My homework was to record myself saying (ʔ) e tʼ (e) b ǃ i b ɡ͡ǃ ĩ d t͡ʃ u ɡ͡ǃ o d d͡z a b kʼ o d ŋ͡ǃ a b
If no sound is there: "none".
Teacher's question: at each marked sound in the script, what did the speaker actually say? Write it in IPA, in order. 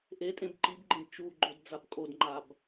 ʔ, ẽ

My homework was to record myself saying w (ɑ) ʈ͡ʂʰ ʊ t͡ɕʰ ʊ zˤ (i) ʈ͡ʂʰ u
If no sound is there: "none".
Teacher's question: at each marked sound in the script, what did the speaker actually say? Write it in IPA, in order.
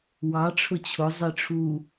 ɑ, i

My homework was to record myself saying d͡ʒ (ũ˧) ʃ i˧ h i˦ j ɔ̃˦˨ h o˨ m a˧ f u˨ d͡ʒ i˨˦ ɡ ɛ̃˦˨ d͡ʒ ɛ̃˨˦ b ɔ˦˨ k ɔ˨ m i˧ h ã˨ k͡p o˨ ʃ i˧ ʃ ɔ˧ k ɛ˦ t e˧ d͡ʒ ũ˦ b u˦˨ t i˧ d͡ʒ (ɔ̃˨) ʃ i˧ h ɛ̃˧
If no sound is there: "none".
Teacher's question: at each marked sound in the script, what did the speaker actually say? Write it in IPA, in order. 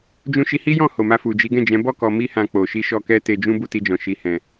ũ˧, ɔ̃˨

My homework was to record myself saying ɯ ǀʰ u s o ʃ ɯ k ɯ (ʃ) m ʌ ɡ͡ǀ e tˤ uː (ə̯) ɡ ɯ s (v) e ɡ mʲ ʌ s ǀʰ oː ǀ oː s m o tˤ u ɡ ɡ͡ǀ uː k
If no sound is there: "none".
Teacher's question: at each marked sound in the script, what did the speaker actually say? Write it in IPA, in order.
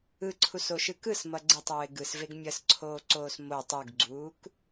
s, ɪ̯, v

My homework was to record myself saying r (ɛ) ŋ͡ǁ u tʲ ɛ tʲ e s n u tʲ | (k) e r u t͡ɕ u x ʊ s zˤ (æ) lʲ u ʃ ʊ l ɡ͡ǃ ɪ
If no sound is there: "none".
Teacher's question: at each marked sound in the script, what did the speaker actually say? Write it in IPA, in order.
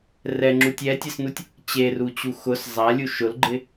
ɛ, t͡ɕ, a

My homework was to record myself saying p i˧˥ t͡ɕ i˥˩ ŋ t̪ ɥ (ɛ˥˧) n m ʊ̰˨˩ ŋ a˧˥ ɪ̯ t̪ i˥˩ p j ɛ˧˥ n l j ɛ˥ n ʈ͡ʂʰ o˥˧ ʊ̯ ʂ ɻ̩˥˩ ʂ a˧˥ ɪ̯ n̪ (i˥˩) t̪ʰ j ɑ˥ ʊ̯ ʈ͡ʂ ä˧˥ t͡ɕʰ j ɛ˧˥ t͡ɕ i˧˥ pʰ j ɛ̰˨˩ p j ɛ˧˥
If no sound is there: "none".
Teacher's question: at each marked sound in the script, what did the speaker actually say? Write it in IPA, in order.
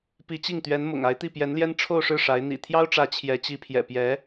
ɛ˧˥, ḭ˨˩

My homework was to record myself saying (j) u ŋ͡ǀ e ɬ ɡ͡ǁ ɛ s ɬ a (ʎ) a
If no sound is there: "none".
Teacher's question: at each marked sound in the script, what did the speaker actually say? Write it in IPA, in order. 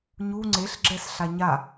ɲ, ɲ

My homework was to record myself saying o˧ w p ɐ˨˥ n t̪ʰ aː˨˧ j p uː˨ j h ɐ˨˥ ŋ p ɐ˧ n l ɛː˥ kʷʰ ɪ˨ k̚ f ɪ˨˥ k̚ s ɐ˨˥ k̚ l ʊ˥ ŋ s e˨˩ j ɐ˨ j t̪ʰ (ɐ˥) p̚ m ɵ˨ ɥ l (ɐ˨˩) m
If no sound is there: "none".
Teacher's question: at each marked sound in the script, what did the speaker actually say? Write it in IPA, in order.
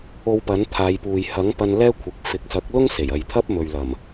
ɐ˥, ɐ˨˩

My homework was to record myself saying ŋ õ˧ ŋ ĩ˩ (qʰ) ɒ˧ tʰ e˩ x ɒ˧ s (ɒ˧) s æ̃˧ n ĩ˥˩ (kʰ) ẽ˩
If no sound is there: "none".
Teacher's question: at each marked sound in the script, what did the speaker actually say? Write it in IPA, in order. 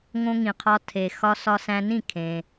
qʰ, ɒ˧, kʰ

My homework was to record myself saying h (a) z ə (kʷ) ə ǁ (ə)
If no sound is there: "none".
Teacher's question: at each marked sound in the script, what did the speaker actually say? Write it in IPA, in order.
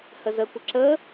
ə, kʷ, ə

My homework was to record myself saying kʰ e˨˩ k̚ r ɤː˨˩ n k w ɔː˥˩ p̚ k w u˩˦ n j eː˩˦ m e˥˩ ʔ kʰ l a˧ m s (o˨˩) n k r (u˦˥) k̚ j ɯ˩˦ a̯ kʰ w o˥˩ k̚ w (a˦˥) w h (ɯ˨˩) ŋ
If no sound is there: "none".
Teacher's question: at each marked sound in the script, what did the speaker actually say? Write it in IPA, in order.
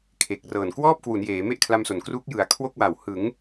o˨˩, u˦˥, a˨˩, ɯ˩˦

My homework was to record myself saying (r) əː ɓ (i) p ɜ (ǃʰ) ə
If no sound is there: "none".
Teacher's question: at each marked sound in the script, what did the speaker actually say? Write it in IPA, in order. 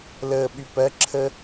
l, y, ǁʰ

